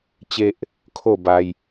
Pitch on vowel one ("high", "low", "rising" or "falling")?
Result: high